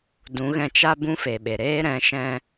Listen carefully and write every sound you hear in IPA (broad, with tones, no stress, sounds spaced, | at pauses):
d ũ˨˦ ɣ ɛ̃˧ t͡ʃ a˦ b ũ˦ f e˨ ɓ e˨ ɾ eː˦ ɾ ɛ̃˨˦ ʃ ɛ̃˧